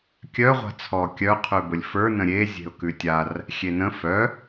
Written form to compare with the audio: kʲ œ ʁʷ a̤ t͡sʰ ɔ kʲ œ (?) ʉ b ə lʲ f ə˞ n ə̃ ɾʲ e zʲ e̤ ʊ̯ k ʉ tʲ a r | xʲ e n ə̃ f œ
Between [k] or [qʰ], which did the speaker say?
qʰ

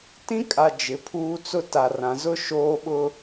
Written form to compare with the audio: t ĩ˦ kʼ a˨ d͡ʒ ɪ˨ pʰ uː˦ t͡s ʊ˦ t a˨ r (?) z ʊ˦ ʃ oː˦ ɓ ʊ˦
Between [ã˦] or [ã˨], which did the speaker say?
ã˨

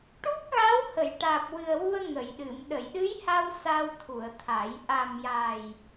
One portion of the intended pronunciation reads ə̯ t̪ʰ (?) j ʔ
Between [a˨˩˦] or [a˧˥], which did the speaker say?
a˨˩˦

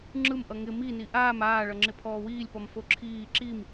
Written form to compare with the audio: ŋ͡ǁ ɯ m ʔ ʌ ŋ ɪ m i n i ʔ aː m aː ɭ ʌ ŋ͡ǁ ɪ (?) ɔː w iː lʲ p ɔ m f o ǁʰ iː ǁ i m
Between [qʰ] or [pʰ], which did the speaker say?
pʰ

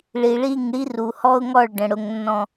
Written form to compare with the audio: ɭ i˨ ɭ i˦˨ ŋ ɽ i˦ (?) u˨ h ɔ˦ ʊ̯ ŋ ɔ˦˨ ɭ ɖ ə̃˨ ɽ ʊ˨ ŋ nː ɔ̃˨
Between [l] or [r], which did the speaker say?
r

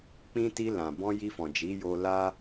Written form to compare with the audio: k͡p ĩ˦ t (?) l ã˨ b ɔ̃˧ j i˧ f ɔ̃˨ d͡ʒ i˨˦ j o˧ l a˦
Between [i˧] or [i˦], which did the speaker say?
i˧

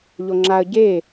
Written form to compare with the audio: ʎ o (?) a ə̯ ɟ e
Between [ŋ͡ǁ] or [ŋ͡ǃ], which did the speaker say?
ŋ͡ǁ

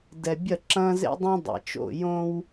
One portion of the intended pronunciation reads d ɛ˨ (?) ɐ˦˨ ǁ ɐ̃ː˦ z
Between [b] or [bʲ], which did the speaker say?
bʲ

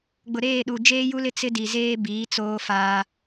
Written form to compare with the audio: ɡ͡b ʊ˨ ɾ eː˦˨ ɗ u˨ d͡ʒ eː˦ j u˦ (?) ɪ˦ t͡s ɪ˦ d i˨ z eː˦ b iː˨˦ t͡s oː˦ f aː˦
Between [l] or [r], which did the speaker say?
l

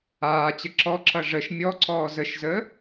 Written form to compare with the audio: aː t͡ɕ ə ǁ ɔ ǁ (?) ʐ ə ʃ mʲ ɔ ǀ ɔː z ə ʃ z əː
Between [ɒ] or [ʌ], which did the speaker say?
ʌ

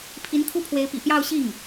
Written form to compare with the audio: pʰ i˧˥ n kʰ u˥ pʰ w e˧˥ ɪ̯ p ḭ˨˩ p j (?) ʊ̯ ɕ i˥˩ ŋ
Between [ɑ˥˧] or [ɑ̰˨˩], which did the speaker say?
ɑ˥˧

